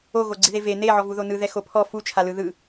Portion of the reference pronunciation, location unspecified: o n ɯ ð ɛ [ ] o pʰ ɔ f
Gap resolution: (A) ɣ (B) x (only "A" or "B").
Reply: B